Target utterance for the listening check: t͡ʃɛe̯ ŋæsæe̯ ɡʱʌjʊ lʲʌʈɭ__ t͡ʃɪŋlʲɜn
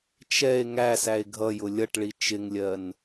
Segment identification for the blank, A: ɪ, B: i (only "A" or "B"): B